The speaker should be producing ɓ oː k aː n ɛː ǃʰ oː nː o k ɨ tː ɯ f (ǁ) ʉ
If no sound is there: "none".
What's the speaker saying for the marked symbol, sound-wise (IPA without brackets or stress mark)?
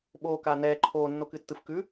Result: k